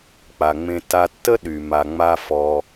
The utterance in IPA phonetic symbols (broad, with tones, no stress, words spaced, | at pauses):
k͡pa˩ŋ͡mẽ˧ ta˧tːə˥ ɗy˩ ma˩ŋ͡ma˧fɔ˩